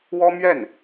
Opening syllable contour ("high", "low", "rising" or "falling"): high